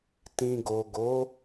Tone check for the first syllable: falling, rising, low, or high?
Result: low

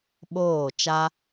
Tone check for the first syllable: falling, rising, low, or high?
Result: falling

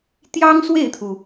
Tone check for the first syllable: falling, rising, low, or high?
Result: high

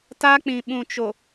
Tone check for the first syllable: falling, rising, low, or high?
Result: high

